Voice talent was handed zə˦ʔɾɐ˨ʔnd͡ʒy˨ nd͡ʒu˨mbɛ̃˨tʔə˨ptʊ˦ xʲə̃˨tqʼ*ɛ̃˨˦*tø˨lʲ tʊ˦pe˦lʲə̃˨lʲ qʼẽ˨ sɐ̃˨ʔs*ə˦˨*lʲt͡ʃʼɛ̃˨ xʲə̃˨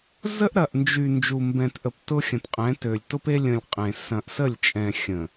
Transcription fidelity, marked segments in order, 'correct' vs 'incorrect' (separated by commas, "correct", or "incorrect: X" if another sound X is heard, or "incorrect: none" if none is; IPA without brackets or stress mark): correct, correct